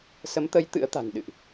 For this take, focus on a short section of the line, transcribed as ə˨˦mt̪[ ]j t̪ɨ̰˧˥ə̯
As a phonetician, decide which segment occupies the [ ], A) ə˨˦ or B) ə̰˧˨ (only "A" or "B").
A